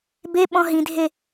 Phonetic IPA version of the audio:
be ɓɔ̃ɦĩdʱe

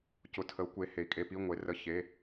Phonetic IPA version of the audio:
cʊ˨˥tʰə˨˥u̯kʷe˨˥ he˨˥i̯kʼe˧˥˧ pi˧˥˧ŋʷe˨˥ rə˧˥˧ çe˧˥˧

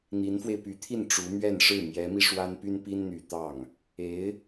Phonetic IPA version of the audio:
n̪i˧˥nfwe˧ɪ̯py˧˥t̪ʰi˥˩n ʈ͡ʂu˧˥mɥɛ˥˧nʂɻ̩˥˩ mjɛ˧˥mi˧ ʂwa˥npy˥npi˥nn̪y˨˩ t̪ɑ˥˩ŋ | e˧˥ɪ̯

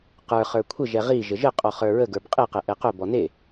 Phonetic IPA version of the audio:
qə˞χə˞ kʷʰəʒɛ ʁi ʒəʒəqʼɔ χə˞ɹəɡə˞b qʼeqɛ ʔɛqœbɔ ne

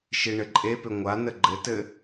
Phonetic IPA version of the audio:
ʃiɳɘǃʼepʏ ŋʷa nəɡ͡ǃɘtɘ

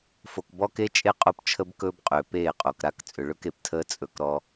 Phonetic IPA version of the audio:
fo˨kbɔ˦ke˦t͡ʃʼe˦ qʼo˦pt͡ʃʰə˦bkɵː˦bqʼʏː˨ peː˦˨qʼo˨kɾa˦k t͡sʼʏ˨ɭɵ˦k e˨ptʰəː˦ t͡sʼɵ˦kɾɔ˦

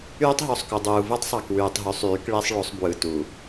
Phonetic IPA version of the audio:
yː˦tˤɦo˨sˤku˨ dˤuː˨ vɯ˦tˤsˤɑ˨k wyː˨tˤɦy˨˦sˤ yː˨˦kɭi˦sˤɭo˨˦sˤ bwɯ˨tu˨

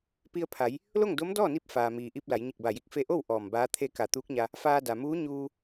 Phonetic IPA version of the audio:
pi˧ə̯pʰa˩˧j | lo˥˨ŋdo˧˥mdɔː˥˨ni˧p̚ faː˩miː˩ʔi˧p̚ la˩˧jɲi˧˩k̚ba˧˩ji˧k̚ fe˧ʔo˥˨w ʔɔː˧˩mbaː˧˥t̪ʰe˥˨ ka˧˩t̪uː˧˥k̚ɲa˧ | faː˧da˩muː˧˥ ɲuː˧

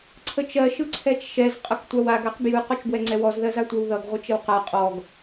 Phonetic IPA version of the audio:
ǀʰət͡ʃɜ ʃɯǀʰɛt͡ʃʃɛz qʼʌktʷawaɡ aqbjɯ qɔt͡ʃbwɛŋ͡ǀɛwɔz ðɜzatʷɜwðʌɡ ʁʷət͡ʃəwqa qʼɔɡ

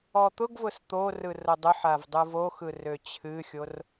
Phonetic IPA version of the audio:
ɔt̪ʊɡvʊs t̪orɯ rodˤʊħav dˤɯvoxɯ røt͡ɕʰɨxʲor

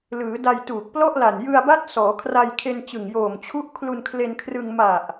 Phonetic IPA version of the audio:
lɯː˩˦da˧jtuː˨˩k̚ plɔ˥˩ʔla˨˩n jɯ˧a̯ba˦˥t̚ sɔː˩˦kʰra˧jkʰe˧nt͡ɕɯ˨˩ŋ joː˨˩m t͡ɕʰu˦˥ʔkʰlu˧nkʰle˧nkʰrɯ˧ŋ ma˨˩ʔ

